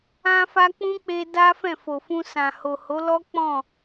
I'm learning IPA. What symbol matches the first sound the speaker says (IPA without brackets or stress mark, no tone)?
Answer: ã